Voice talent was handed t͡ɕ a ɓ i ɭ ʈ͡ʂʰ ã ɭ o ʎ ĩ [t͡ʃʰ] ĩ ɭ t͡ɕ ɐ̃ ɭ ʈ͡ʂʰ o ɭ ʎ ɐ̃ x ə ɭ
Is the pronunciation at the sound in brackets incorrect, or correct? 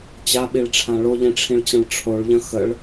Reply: incorrect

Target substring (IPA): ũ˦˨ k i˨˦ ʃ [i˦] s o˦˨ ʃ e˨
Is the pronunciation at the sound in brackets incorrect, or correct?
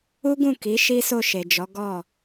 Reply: correct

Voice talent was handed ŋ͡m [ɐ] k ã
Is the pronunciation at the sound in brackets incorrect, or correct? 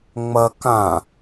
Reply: correct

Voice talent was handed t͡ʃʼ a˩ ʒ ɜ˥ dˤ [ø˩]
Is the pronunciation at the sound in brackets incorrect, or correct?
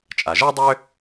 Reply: incorrect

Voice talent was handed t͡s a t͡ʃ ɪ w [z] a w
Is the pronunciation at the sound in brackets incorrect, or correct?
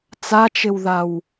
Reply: incorrect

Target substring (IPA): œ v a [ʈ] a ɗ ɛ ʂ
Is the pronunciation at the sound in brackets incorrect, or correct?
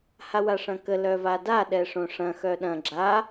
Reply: incorrect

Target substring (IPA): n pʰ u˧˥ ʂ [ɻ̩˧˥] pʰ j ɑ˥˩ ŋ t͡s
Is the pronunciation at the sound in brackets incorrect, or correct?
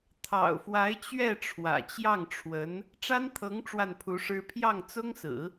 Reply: incorrect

